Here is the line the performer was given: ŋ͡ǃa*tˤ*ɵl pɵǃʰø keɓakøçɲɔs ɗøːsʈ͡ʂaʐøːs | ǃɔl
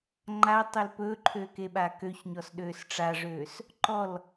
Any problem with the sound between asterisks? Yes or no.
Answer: no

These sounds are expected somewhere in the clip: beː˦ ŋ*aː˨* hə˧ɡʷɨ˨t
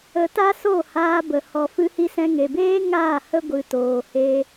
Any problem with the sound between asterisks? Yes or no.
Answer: yes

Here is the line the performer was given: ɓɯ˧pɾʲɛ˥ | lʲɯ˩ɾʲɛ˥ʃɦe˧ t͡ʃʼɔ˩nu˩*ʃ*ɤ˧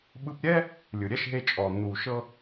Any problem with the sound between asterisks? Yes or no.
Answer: no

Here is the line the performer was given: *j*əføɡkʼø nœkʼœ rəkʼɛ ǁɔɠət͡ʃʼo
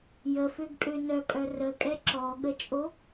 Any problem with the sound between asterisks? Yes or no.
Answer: no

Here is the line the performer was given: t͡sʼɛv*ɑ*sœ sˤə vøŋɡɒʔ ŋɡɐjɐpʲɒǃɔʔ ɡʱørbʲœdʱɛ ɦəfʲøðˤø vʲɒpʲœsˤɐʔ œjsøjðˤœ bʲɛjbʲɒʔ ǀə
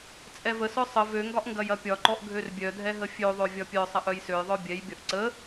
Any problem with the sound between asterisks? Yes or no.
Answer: yes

